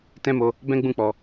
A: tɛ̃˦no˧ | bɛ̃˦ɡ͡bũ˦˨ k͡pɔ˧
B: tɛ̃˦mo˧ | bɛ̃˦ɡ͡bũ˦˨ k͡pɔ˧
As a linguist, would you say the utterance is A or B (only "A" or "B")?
B